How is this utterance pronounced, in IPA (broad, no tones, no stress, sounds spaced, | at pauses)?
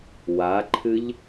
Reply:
w a ǃʰ ɨ ʎ